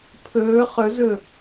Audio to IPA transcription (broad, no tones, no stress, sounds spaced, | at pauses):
pʰ ɵː χ ɵ z ɵ